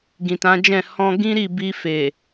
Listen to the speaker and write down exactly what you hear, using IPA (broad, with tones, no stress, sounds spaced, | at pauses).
ɡ ĩ˨ t ã˨˦ d͡ʒ ɛ̃˦˨ h ɔ̃˧ ɡ ĩ˦ ɾ i˦˨ b i˧ f e˨